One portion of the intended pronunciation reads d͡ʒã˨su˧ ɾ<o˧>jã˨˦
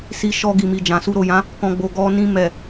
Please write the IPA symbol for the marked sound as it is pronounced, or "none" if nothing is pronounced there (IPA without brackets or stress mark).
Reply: o˨